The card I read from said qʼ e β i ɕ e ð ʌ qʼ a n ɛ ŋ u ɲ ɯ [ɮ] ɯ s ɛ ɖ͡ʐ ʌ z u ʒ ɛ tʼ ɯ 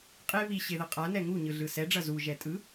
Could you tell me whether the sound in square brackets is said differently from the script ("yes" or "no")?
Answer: no